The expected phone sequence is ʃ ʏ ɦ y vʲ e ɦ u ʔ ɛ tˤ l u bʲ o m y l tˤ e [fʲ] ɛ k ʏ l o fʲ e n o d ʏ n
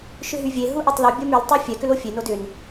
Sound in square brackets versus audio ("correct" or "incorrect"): correct